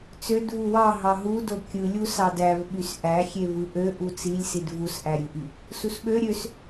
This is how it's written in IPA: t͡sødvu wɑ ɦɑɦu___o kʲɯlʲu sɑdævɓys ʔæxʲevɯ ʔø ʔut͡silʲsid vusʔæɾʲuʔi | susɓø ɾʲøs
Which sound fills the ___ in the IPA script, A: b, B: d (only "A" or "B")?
B